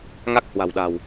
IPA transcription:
ŋa˦˥k̚ hwa̤˨˩wɗa̤˨˩w

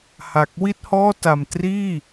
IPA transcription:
ha˨˩k̚ wi˥˩t̚hɔː˥˩ta˧m triː˥˩

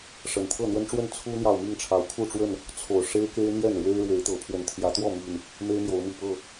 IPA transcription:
ʂə˨˩nt̪ʰɤ˥˨n̪wə˦nʈ͡ʂwə˥˨n t͡sʰu˦n̪jɑ˨ʊ̯ mi˥˨ŋʈ͡ʂʰɑ˨˦ʊ̯kʰu˥˨ʈ͡ʂwə˥˨n | t͡sʰo˨˩ʊ̯ʂe˦ɪ̯ke˦ɪ̯ n̪jɛ˥˨nɻwe˦ɪ̯ɻwe˨˦ɪ̯ t̪ɤ˨˦ pʰwə˨˩nt̪ʰjä˨˦t̪wɔ˥˨mi˨˩n | me˦ɪ̯mjo˨˦ʊ̯mi˨˩ pɤ˥˨

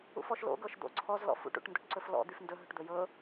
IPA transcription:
ṵfɔʃlo̰ ɡɤʃd̪o̰ǀʰɔz lɔ̰fṵʈ ṵʈndɵʈǀɵflɔ̰ d̪yfndɵ ɦɵʈd̪ɵjɤ

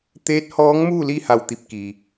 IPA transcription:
t̪eː˧˥t̚hɔː˧˥ŋmuː˥˨li˥˨ ha˥˨wt̪i˥˨p̚ ki˩

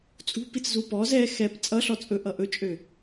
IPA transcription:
t͡sʼṳpit͡szu pɔz ɛ xɛp t͡sʼʌɬɔ t͡sʼɵʔʌ ʔɵt͡ʃʼø

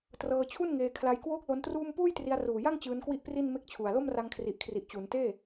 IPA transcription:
trɤː˧t͡ɕʰu˥˩n ŋeː˧ kʰla˧jkwoː˥˩k̚ lo˦˥ntruː˥˩m puː˥˩jtri˧a̯ruː˨˩ja˥˩ŋ t͡ɕɯː˦˥nkwi˥˩ʔpri˥˩n me˥˩k̚t͡ɕʰu˨˩a̯ lo˥˩mra˧ŋkʰri˨˩ʔkʰri˨˩ʔ t͡ɕu˩˦nteː˥˩

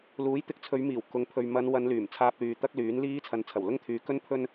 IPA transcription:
luː˨˥jt̪ɪ˨˥k̚t͡sʰɵ˨˧ɥmiː˨˩w kʊ˨ŋpʰɵ˨ɥ mɐ˨˧nwɐ˨˧n lyː˨˩mt͡sʰaː˧p̚lyː˨ t̪ɐ˥k̚lyː˨˥nliː˥ t͡sʰɐ˨˧nt͡sʰɐ˨˩wlʊ˥ŋ t̪ʰyː˧ kɵ˥npʰɵ˥n

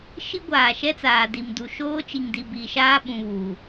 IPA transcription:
ʃi˦ɡʷaː˨ʃɛ˦t͡saː˨ di˨mdu˨ ʃoː˦t͡ʃi˨ŋdi˨ biː˨ʃaː˦ ɓũ˨βuː˨

